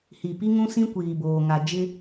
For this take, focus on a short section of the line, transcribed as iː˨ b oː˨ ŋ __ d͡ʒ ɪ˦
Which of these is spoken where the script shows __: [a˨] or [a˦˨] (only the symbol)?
a˨